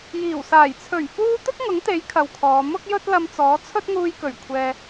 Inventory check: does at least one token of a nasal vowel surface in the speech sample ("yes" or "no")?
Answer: no